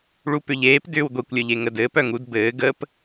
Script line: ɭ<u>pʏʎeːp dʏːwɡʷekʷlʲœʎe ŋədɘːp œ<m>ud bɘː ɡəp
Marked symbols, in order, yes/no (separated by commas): yes, no